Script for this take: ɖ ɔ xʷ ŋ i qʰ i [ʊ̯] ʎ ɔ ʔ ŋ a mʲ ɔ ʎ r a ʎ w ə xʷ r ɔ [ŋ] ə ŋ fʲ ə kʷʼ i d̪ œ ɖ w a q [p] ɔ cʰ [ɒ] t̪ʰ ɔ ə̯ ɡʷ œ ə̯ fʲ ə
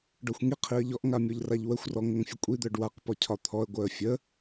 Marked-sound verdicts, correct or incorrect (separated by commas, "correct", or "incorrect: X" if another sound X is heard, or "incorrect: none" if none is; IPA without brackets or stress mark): incorrect: ə̯, correct, correct, correct